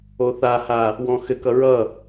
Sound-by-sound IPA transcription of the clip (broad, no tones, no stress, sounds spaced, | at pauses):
o θ a h a | w ɔ̃ x ɘ k ʌ ɹ ʌ